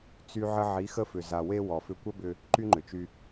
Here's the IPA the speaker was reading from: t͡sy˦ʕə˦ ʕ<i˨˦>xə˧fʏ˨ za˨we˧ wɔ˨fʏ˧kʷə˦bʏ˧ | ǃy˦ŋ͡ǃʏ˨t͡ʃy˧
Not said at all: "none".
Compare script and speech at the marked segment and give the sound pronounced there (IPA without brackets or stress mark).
i˨˦